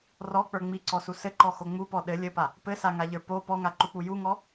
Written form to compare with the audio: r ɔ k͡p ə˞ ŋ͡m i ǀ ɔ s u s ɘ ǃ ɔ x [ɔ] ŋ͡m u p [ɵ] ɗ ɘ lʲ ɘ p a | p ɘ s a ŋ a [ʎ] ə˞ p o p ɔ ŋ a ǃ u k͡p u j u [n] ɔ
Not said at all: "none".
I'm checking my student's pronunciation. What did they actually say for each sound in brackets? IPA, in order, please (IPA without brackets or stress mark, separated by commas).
o, ɔ, ʎ, ŋ